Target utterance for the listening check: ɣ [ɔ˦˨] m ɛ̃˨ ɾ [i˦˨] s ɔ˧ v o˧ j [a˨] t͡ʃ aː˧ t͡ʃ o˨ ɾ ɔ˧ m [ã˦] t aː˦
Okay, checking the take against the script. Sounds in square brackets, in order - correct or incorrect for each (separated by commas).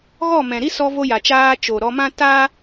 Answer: correct, incorrect, correct, correct